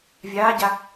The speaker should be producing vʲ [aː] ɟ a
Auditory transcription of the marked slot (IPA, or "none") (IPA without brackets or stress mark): aː